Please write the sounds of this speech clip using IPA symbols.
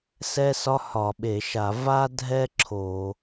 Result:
s ɛ˥ s ɒ˥ h ɒ˧˩˧ ɓ e˧˩˧ ʃ a˧˩˧ v a˥ dʱ ɛ˥ ǁʰ o˧˩˧

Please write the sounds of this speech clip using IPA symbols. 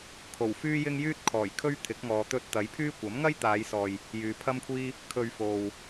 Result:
kʰ o˨˩ w f yː˥ j ɪ˥ ŋ j yː˥ t̚ kʰ ɔː˨˩ j kʰ ɵ˥ ɥ t̪ʰ ɪ˨˥ k̚ ŋ ɔː˨˧ t̪ ɵ˧ t̚ t̪ ɐ˨˥ j pʰ yː˥ kʷ ɐ˨˥ m ŋ ɐ˥ j t̪ aː˨˧ j s ɔː˨ j | j yː˨˧ pʰ ɐ˥ m kʷʰ iː˥ | kʰ ɵ˨ ɥ f o˨ w

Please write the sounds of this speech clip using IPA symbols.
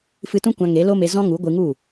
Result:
f ɨ˧ t ũ˦ kʷ ã˧ ŋ e˨˦ l o˦ m e˧ z ɔ̃˦ ŋ u˨˦ ɡʷ ɨ˧ ŋ u˦˨

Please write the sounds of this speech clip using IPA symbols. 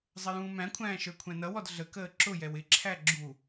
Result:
zˤ ə j ũː m æ̃ kʷʰ æ̃ː ʃ ə˞ kʷʰ æ̃ n ʌ w ɔ d ɮ ə k əː ǁ ʊ j ɛ w ɪ ǁʰ æ ɡ͡ǁ u

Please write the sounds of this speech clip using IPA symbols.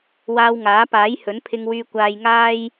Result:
w aː˧ w ŋ aː˨˥ p aː˨˥ j h ɵ˨˥ n pʰ ɪ˧ ŋ w yː˧ kʷ aː˧ j ŋ aː˥ j

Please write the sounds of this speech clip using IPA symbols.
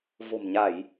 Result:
v o̤˨˩ m ɲ a˧˩˨ j

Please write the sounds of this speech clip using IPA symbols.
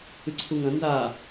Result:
ɨ ǀʰ u ŋ ɐ̃ n z a

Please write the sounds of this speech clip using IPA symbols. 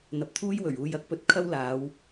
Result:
n̪ ɐ˨ p̚ t̪ʰ uː˥ j w ɵ˨˩ ɥ uː˨ j ɐ˧ k̚ p ɵ˧ t̚ kʰ ɐ˥ w l aː˨˧ w

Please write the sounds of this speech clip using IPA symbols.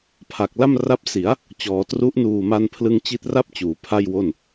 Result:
pʰ a˨˩ k̚ l a˥˩ m r a˦˥ p̚ s i˩˦ a̯ | t͡ɕ ɔː˩˦ t r u˦˥ ʔ n uː˨˩ m a˧ n pʰ l ɯ˧ ŋ t͡ɕ i˦˥ t̚ r a˥˩ p̚ t͡ɕ uː˩˦ pʰ a˥˩ j w o˥˩ n

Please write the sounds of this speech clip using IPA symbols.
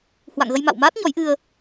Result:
h w a̰˧˨ ŋ ɣ ə˧ j m a̰˧˨ w m aː˦˥ t̚ ɲ ɔ˨˦ j ʔ ɨ˧ ə̯

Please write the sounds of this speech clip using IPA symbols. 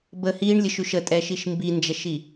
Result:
b ə h i ɳ lʲ ə ʃ ʉ ʃ ə tʼ ɛ ʃ i ʃ m b i n d͡ʒ ɛ ʃ i

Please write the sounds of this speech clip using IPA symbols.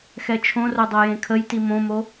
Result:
x ɛ t͡ʃʰ õ r o dˤ o j ẽ kʰ ə j t i m õ m o

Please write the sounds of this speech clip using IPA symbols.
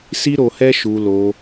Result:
s i˦ ɾ o˧ h ɛ˦ ʃ u˧ l o˧

